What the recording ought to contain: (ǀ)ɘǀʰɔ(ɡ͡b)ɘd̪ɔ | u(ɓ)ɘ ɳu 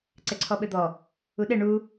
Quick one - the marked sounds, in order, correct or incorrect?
correct, incorrect, incorrect

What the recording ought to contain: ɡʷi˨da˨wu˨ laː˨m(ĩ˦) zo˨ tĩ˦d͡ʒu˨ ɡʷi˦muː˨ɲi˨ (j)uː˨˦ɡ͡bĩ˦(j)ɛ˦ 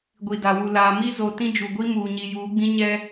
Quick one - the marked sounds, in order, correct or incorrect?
incorrect, correct, incorrect

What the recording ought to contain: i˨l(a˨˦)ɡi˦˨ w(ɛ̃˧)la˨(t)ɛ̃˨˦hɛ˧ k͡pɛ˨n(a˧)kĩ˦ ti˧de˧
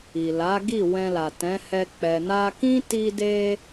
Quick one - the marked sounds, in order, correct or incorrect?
correct, correct, correct, correct

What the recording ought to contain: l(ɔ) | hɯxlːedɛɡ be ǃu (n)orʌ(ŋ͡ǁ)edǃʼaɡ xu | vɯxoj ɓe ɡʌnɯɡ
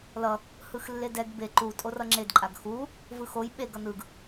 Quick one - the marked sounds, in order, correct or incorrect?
incorrect, incorrect, correct

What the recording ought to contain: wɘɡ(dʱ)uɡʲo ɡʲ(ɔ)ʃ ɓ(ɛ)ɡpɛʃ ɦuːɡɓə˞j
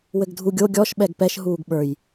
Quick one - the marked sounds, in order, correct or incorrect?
correct, correct, correct

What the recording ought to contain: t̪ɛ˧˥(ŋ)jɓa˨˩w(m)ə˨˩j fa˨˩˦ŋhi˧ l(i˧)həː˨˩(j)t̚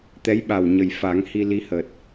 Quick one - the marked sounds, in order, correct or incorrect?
incorrect, incorrect, correct, incorrect

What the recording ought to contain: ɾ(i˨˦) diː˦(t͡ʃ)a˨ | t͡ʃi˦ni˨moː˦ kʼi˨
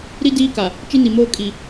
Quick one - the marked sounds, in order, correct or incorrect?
incorrect, incorrect

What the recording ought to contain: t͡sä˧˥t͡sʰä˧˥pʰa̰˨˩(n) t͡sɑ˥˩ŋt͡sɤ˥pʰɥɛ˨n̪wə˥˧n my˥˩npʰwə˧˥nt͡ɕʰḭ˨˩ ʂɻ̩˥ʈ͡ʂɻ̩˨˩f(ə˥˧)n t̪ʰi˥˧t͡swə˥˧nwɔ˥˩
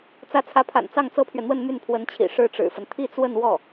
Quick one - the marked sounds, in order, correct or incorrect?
correct, incorrect

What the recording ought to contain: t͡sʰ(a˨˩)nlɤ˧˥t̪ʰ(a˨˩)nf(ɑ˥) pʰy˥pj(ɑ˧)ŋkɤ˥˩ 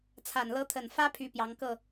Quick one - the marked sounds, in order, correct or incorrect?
correct, incorrect, incorrect, incorrect

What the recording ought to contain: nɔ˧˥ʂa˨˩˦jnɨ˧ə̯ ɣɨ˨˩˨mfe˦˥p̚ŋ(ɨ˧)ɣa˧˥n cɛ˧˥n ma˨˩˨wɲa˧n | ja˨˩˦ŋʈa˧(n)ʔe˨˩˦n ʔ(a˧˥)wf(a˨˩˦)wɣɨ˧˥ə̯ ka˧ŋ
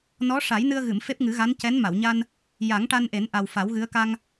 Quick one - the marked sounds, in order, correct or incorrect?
incorrect, correct, incorrect, correct

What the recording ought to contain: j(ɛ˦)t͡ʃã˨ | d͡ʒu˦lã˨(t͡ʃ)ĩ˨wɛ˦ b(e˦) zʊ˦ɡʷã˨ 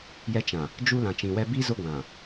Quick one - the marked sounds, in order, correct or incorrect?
correct, correct, incorrect

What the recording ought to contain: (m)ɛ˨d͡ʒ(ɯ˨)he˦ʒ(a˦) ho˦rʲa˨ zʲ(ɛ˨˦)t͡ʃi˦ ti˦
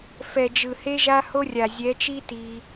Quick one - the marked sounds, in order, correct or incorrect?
incorrect, correct, correct, correct

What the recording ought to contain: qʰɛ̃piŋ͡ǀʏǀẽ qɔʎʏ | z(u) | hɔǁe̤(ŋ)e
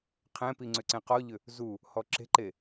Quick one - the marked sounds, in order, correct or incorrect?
correct, incorrect

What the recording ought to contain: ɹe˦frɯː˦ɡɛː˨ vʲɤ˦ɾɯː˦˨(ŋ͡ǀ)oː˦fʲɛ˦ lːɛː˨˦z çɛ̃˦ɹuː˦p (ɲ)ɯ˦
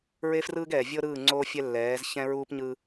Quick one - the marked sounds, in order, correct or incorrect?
correct, correct

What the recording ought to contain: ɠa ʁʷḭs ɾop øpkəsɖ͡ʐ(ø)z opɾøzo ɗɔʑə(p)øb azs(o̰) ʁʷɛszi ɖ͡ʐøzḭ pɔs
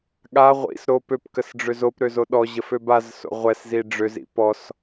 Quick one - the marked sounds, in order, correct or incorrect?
correct, incorrect, correct

